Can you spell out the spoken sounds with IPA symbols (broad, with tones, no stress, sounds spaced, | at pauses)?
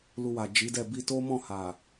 l u˧ w a˨ d͡ʒ i˨˦ d ɛ˦˨ b i˧ t o˦ m ɔ̃˦˨ h a˨